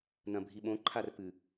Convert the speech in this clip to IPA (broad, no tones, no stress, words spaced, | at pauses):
nɐ̃bʱiɓõ ǃʰarpɨ